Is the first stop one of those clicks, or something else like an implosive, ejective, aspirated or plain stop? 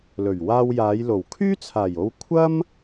aspirated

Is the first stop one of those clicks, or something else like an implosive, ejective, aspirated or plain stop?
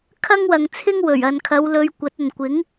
aspirated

